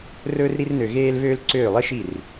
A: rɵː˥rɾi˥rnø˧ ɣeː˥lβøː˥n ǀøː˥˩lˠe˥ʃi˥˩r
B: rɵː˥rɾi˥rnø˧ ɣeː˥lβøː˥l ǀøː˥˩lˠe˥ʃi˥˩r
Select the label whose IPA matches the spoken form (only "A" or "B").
B